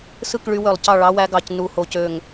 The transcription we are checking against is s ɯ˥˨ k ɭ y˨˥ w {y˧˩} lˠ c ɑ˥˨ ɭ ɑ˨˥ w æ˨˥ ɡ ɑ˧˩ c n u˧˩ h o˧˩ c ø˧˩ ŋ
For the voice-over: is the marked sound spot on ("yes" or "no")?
no